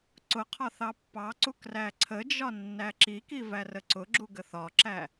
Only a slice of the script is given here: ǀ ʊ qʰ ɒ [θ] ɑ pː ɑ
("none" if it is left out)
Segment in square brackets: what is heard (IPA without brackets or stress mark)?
θ